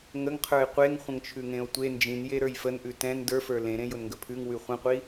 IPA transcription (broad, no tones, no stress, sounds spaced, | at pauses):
ŋ ə ŋ qʰ ə˞ e̯ qʷ e ŋ χʷ ə̃ ŋ t͡ʃʰ ʉ ŋ ẽ o̯ tʷ e n d͡ʒ ĩ n j e ɾ ə˞ j f ə n ʔ ʉ t ɛ̃ n d ə˞ f ə˞ l ẽ ɾ ẽ j ʊ n ŋ ɡ ə pʰ ʉ ŋ w ʉ χʷ ə̃ qʷ i